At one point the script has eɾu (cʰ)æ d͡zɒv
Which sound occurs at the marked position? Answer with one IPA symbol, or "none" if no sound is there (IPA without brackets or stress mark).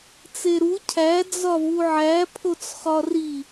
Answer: cʰ